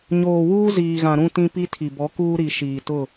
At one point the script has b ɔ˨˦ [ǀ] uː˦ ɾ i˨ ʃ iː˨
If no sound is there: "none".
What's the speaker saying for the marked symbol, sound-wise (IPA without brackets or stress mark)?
k